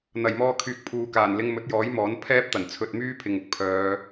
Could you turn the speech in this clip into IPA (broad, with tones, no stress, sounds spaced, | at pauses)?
n̪ ɐ˨˩ j m ɔː˧ kʰ yː˨ k̚ pʰ uː˨ k aː˨˩ n l ɪ˧ ŋ m ɵ˨˥ t̚ j ɔː˨˥ j m ɔː˨˥ n pʰ ɛː˥ p̚ t̪ ɐ˨˩ n t͡sʰ ɵ˧ t̚ m yː˥ pʰ ɪ˨ ŋ ʊ˨ k̚ pʰ œː˨˧